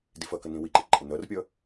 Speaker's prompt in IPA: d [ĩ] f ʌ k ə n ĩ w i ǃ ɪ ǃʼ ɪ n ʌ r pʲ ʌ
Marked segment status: incorrect: i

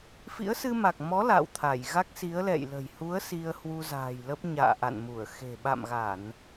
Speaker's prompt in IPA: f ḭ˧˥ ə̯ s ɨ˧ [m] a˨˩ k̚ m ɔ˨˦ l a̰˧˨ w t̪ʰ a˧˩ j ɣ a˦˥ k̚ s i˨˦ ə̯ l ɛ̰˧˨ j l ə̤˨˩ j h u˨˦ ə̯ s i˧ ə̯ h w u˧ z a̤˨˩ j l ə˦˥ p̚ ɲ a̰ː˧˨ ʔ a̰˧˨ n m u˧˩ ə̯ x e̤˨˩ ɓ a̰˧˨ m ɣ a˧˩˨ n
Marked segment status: correct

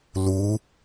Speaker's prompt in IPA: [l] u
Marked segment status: correct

